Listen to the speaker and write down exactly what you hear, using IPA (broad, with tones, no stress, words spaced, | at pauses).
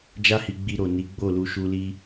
d͡ʒa˦hi˧ɡ͡bi˧ɾo˨ ni˨˦ɡ͡bo˦˨lu˧ ʃu˧li˦